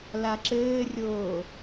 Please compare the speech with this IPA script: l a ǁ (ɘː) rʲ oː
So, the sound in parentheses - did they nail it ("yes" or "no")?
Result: yes